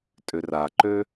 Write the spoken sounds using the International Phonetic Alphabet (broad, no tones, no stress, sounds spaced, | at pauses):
tʼ ʏ r a ǃ ø